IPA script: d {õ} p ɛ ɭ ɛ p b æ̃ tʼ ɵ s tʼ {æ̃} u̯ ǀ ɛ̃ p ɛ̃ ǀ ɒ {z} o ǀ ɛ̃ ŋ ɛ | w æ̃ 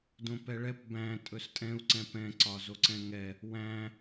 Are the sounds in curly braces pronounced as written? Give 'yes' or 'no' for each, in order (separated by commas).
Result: yes, no, yes